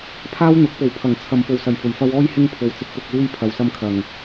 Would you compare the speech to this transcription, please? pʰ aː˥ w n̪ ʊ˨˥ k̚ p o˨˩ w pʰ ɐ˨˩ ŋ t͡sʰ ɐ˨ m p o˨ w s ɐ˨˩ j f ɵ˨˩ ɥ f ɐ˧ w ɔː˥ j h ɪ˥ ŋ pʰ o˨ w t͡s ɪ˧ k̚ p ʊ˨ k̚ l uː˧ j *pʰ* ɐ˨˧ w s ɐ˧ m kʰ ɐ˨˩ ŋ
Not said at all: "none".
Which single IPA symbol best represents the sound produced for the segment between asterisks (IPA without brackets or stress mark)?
pʰ